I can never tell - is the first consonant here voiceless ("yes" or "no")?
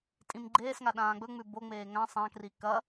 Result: yes